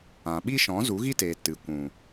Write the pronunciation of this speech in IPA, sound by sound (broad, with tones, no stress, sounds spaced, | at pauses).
ã˨ ɓ i˦ ʃ ɔ̃˨˦ z u˨˦ ɣ i˦ t eː˨ t ɨ˨ kʷ ũ˨